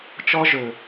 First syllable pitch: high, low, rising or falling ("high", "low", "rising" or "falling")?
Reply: high